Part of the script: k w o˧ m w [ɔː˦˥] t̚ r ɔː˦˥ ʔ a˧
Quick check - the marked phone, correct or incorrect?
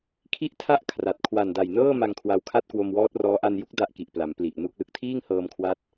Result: correct